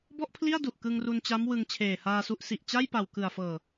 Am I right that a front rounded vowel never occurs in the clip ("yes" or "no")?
yes